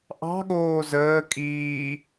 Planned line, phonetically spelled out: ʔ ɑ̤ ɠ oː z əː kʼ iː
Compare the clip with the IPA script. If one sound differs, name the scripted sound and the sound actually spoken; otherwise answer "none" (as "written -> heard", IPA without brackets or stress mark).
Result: none